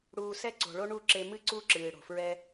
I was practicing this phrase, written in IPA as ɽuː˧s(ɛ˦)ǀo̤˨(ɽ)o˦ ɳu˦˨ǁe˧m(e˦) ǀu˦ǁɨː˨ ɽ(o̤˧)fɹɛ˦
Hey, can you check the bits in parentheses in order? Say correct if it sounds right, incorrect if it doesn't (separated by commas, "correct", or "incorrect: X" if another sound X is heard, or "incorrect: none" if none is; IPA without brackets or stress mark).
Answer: correct, incorrect: ɭ, incorrect: ɨ˦, incorrect: o̤˨